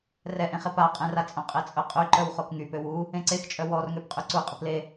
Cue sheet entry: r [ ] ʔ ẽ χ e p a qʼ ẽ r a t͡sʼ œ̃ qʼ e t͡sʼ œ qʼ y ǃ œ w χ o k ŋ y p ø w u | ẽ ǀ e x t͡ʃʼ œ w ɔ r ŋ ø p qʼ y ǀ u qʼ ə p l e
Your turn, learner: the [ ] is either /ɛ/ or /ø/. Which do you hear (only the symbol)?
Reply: ɛ